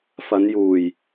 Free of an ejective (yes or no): yes